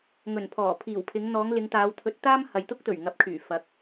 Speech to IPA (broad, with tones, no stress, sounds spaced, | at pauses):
ŋ ɵ˨˩ n pʰ ɔː˨˩ pʰ iː˨˩ w pʰ ɪ˨˧ ŋ n̪ ɔː˨˧ ŋ l ɪ˨˧ ŋ t̪ aː˨˧ w t̪ʰ ɵ˨˥ t̚ t̪ aː˥ m h ɐ˨ j t̪ ʊ˥ k̚ t̪ ɵ˨˩ ɥ ŋ ɐ˨˥ p̚ kʰ yː˨˩ f ɐ˨˥ k̚